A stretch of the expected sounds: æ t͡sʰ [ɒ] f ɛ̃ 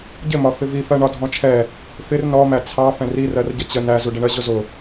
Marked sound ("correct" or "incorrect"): incorrect